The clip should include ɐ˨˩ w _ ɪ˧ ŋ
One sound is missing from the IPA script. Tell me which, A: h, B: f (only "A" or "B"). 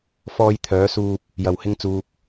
A